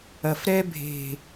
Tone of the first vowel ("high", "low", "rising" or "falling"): low